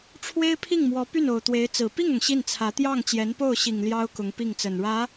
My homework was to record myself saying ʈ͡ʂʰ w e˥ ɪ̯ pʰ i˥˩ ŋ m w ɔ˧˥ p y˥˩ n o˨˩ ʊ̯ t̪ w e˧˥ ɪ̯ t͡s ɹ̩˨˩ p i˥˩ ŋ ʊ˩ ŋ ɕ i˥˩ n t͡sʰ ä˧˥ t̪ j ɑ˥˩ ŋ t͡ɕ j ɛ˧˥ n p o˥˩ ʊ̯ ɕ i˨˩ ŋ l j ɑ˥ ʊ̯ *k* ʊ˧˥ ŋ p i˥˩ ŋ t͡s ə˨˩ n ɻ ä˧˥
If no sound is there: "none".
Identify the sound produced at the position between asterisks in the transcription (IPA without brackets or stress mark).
k